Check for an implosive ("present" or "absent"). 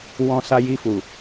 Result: absent